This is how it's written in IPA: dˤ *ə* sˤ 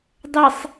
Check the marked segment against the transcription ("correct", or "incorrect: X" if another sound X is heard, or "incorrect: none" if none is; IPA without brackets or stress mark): correct